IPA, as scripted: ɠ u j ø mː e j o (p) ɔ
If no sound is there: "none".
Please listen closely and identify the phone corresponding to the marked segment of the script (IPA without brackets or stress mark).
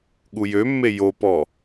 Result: p